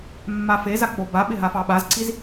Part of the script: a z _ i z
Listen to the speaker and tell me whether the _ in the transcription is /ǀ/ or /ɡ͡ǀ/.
ǀ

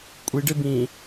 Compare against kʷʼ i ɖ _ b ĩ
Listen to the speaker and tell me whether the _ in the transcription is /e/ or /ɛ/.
e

